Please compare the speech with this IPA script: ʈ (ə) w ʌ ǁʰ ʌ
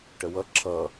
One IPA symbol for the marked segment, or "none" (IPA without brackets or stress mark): ə